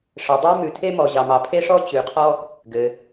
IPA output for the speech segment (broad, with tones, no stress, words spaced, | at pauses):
ʂɘ˩dˤʉ˧ mʉ˩tʰe˧mɔ˩ ʑɑ˩mɑ˩pʰe˥ʂɔ˥ t͡ɕʉ˩qʰɔ˧ | ɡɘ˩